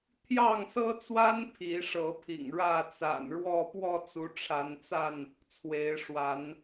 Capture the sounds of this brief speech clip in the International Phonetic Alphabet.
t̪ʰ j ɑ˥˨ ŋ s ɤ˦ t͡s w a˦ n pʰ i˨˦ ʂ ɤ˨˦ pʰ ḭ˨˩ ŋ ɻ ä˥˨ t͡s a̰˨˩ n ɻ w ɔ˥˨ p w ɔ˥˨ t͡s u˨˦ ʈ͡ʂʰ a˨˦ n t͡s a˥˨ n | t͡sʰ w e˨˦ ɪ̯ ʂ w a˨˦ n

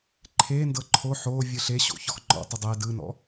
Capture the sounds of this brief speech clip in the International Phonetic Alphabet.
ǃʰ e n d ɤ ǃʰ o ħ o vʲ ɯ ɬ e ɕ o̰ ç ɔ x ŋ͡ǃ ɔ̰ tˤ ɯ dˤ ɛ d ɯ n ɔ̰

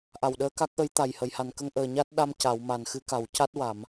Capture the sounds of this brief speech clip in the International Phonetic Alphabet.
ʔ a˨˩ w ɗ əː˧ k a˦˥ k̚ ʔ ə˧˥ j t̪ a˨˩ j h ə˨˩˨ j h a˨˩ n k ə˧ ŋ ʔ əː˨˩ ɲ a˦˥ t̚ ɗ a˧ m c a˨˩˨ w m a˨˩ n x ɨ˨˩˦ k a˨˩ w c a˦˥ t̚ w a˨˩˨ m

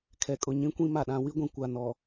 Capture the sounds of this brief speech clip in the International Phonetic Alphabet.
kʰ ɛ˨ kʼ ʊ˨ ɲ ĩ˦ kʷ ĩ˦ m a˨ ɗ ã˨ w i˦ ɡʷ ĩ˨ kʷ a˨ n ɔ˨

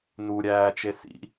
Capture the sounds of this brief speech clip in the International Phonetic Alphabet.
n u ɾʲ æː t͡ʃ e s ḭ

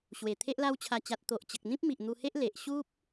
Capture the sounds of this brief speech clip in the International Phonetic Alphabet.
ɕ w e˨˩ t̪ʰ e˦ ʔ l a˧ w t͡ɕʰ a˨˩ t͡ɕ a˨ t̚ t̪ o˨ ʔ t͡ɕ ə˨ k̚ n̪ ĩ˦ p̚ m i˨ ʔ n̪ u˧ h e˦ ʔ l e˨ ʔ ɕ u˦ p̚

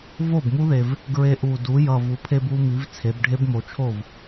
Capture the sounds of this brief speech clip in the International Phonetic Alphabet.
v o˥˩ b m u˦˥ ð e˨˩ v | ɡ ɹ e˧ ʔ u˨˩ d u˩˧ j ʌ˨˩ v u˩˧ pʰ e˧ b u˧ m i˩˧ v t͡sʰ e˩˧ b ɖʱ e˦˥ b m o˨˩ t͡ʃʰ o˥˩ v

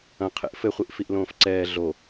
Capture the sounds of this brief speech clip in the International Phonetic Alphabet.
ɐ̃ qʰ ḛ ʔ f ɘ χʷ i ʔ f i ʔ l õː f ǀ ɛː ɮ o

